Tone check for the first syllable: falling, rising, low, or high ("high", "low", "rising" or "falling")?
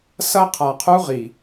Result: high